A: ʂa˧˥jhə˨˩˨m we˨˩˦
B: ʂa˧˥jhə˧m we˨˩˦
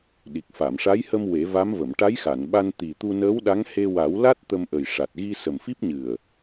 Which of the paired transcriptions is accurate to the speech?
B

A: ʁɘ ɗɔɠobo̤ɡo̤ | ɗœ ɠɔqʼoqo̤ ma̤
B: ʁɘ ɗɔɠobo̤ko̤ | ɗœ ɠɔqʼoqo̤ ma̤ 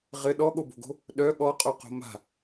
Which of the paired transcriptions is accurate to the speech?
A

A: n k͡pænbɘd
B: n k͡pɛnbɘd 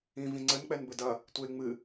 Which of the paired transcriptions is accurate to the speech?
B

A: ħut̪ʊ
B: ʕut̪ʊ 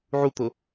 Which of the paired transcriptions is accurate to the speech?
B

